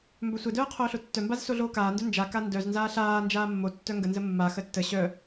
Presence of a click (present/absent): absent